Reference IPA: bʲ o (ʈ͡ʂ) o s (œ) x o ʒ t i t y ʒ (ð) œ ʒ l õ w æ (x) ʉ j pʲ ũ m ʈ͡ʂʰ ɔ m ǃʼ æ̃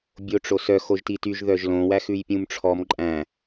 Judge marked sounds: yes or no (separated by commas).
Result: yes, yes, yes, yes